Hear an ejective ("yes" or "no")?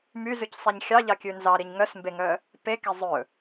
no